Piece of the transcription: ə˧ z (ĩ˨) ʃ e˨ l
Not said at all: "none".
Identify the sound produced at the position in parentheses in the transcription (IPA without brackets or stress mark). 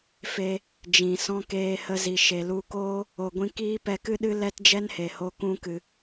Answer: i˨